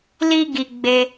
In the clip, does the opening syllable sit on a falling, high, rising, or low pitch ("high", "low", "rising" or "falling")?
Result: high